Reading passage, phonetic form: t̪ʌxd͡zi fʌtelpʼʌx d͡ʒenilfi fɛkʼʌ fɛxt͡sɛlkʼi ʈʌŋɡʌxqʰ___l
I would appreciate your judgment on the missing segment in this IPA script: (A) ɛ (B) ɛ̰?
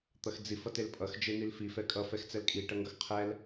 A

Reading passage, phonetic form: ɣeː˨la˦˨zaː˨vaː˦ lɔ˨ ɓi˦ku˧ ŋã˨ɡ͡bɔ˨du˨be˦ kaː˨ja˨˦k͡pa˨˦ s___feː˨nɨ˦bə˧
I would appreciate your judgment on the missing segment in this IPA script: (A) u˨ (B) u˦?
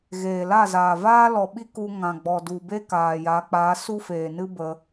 B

